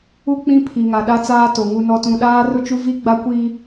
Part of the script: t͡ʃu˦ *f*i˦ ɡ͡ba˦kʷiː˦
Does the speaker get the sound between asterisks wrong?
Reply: yes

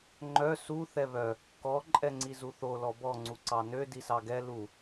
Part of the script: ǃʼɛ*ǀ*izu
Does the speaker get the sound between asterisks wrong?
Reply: yes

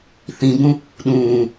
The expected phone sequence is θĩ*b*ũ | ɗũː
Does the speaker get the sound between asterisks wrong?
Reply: no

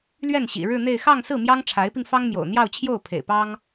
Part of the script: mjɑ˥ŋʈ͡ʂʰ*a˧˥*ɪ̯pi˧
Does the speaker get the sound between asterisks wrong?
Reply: no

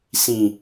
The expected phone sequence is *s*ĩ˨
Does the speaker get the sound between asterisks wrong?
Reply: no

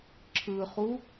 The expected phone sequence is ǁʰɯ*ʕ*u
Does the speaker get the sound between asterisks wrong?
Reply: yes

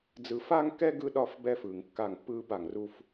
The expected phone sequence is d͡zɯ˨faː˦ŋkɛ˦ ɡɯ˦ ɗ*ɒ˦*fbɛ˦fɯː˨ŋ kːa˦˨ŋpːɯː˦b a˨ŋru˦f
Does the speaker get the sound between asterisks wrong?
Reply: no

